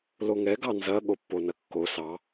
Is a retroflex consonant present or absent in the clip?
absent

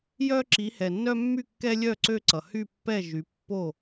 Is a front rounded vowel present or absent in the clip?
present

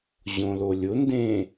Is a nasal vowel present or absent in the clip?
present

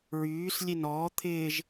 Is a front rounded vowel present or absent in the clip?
present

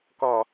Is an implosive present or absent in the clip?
absent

